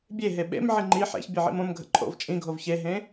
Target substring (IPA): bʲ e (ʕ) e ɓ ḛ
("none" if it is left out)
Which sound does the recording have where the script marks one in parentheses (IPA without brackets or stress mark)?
ɦ